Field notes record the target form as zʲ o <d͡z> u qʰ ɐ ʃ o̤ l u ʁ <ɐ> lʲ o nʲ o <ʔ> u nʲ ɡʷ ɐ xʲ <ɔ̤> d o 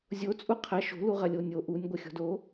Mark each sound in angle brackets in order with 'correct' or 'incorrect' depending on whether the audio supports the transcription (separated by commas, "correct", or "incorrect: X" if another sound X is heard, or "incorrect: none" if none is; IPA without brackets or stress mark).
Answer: incorrect: t͡sʼ, correct, correct, correct